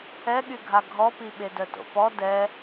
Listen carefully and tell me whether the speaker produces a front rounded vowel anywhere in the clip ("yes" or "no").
yes